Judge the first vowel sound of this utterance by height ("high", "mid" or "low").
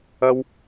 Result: low